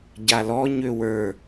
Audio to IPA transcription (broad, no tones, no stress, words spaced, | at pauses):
ɟalɔ ɲøwə˞